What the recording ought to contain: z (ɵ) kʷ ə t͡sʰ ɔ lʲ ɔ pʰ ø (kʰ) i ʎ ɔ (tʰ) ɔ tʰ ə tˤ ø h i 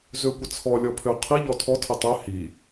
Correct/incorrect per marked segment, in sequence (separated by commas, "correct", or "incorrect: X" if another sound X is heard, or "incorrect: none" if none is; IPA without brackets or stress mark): incorrect: ø, incorrect: qʰ, correct